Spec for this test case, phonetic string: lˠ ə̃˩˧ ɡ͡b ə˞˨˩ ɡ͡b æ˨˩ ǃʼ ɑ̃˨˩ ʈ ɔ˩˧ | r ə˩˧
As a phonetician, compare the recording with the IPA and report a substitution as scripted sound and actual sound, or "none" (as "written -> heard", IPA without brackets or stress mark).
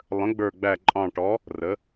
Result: none